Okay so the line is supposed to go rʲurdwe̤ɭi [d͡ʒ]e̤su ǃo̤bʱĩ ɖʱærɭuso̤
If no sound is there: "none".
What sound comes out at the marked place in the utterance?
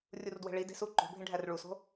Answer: d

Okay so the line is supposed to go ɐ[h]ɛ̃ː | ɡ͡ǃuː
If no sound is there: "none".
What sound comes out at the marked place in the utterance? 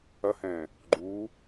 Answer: h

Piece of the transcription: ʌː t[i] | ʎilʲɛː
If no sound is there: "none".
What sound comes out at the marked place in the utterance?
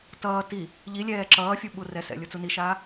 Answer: i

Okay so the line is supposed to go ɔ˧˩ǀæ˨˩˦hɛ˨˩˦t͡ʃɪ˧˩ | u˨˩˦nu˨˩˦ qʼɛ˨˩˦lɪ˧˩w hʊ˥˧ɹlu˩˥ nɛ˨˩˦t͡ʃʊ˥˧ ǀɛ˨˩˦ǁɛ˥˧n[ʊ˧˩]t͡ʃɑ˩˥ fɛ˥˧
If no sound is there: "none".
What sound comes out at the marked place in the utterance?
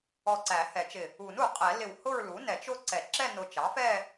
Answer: ʊ˧˩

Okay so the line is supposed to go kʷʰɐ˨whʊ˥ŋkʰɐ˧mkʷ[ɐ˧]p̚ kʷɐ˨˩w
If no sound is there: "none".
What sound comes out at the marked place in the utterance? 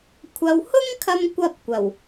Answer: ɐ˧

